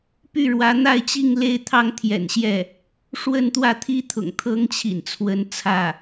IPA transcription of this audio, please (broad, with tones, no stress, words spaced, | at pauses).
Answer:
py˥˩ɻwä˧˥n̪a˥˧ɪ̯ t͡ɕi˥˧ŋle˥˩ɪ̯t̪ʰɑ˥ŋ t̪ʰjɛ̰˨˩nɕjɛ˥˩ | ʂwə˥˧nt̪wä˥˩t̪ʰi˥t̪ʰʊ̰˨˩ŋ t̪ʰɤ˥ŋt͡ɕʰḭ˨˩nt͡sʰwə˧˥n t͡sʰä˥˩